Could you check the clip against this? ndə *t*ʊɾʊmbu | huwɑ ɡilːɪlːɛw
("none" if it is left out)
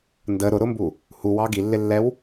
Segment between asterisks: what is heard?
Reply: ɾ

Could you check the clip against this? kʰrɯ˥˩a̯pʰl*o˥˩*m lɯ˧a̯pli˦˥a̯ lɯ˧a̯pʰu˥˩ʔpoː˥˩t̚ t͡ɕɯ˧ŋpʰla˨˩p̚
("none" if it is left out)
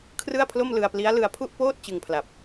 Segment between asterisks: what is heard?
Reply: o˥˩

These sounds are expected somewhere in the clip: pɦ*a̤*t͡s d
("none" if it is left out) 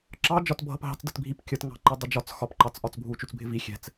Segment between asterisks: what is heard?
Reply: ɑ̤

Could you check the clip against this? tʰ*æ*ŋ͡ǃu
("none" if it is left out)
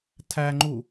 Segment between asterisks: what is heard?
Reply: æ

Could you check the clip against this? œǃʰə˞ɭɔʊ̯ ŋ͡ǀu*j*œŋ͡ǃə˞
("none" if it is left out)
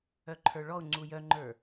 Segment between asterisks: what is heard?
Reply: j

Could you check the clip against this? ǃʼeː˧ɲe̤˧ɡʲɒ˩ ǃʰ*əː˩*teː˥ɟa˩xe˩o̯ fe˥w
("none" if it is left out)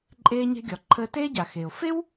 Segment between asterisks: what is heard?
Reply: əː˧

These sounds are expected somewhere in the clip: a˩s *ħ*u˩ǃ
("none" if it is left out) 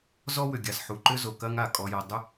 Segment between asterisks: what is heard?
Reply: ħ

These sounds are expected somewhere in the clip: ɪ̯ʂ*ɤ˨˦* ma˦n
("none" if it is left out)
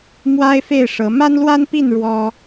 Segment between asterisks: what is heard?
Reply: ɤ˨˦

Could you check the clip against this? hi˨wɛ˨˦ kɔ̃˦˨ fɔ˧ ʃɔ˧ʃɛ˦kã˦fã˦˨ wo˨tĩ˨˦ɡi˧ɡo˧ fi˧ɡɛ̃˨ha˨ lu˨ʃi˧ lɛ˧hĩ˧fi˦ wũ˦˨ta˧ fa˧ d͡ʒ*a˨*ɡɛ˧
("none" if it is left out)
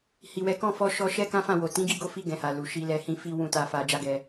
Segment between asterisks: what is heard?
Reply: a˦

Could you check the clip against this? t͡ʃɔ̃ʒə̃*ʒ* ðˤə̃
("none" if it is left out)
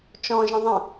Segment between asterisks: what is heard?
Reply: none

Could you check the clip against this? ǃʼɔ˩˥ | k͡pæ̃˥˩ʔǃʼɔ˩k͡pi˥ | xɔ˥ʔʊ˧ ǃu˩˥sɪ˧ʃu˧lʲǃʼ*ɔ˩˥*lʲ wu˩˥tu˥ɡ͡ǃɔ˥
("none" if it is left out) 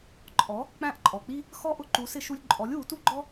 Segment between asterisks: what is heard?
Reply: ɔ˩˥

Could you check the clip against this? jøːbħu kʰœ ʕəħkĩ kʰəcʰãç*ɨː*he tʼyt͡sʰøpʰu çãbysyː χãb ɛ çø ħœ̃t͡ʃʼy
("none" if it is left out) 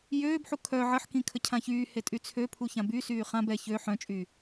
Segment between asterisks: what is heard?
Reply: yː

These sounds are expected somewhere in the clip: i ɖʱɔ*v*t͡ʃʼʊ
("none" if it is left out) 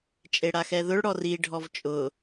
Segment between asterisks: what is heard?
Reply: v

